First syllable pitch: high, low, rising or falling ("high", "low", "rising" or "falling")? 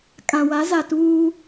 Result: low